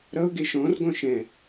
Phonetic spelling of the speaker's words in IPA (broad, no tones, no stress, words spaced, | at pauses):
ɾʌʊ̯ɡe ʃɔ̃rɡɔ̃ ʃɛ̃